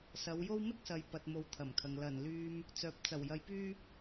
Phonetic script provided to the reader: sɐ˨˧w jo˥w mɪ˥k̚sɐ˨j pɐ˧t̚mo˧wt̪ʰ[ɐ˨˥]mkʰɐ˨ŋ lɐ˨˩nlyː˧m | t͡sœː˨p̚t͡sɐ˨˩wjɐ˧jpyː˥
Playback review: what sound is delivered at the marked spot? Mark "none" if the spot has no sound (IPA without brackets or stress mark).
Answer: ɐ˨˩